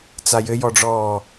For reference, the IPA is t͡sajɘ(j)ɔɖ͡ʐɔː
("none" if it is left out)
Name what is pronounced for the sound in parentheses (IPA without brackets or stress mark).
j